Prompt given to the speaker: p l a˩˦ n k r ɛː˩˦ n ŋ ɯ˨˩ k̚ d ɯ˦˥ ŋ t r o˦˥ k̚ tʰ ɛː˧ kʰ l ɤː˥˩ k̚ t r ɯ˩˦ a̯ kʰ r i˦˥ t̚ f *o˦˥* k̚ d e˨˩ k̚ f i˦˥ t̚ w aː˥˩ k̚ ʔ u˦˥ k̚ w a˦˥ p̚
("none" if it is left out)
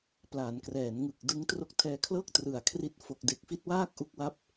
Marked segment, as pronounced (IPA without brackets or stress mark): o˨˩